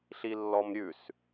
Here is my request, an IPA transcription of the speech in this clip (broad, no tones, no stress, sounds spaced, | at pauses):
ɬ i lː ɔ m ɾʲ ʉ s